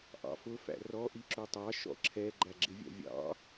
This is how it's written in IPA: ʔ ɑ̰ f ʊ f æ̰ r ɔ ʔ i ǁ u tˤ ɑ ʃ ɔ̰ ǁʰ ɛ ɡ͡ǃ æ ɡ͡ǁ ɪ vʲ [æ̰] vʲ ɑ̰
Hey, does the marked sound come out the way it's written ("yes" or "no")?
yes